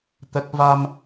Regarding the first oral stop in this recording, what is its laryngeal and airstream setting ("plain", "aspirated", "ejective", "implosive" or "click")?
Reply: plain